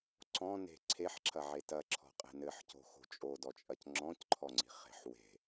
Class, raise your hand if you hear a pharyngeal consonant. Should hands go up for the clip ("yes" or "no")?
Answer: yes